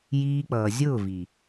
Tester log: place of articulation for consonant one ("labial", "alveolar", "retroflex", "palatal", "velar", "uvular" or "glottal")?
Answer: palatal